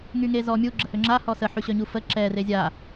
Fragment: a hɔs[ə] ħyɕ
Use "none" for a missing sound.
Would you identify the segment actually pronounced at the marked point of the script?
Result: ə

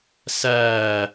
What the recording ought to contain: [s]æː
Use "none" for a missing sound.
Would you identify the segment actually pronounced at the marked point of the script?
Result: s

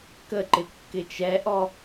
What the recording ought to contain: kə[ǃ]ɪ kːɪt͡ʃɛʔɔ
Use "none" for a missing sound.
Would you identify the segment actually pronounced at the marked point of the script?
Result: ǃ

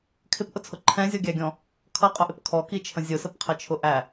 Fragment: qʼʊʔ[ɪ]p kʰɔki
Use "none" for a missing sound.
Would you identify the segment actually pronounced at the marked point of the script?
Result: ɪ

